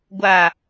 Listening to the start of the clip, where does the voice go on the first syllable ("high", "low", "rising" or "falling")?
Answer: low